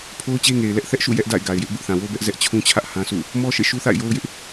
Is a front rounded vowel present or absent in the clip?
absent